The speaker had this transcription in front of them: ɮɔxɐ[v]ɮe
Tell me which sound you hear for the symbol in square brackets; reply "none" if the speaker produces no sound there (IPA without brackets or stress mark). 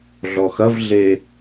v